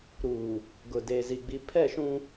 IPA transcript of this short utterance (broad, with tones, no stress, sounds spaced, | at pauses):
ɾ uː˨ | ɡ ʊ˨ d e˨ z i˨ ɡ͡b i˨ pʰ ɛ˦˨ ʃ ũ˦